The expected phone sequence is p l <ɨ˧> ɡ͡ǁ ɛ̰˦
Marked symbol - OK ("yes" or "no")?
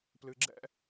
yes